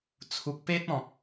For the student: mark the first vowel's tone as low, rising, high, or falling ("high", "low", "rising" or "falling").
low